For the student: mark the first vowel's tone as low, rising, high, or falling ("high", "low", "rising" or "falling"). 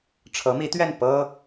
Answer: rising